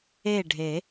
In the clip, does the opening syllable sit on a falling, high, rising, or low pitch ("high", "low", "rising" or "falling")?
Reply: falling